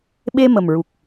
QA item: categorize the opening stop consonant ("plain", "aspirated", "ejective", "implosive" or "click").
implosive